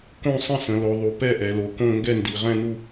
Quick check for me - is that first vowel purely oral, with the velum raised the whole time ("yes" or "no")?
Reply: no